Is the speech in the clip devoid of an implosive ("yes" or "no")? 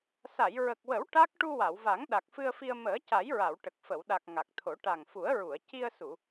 no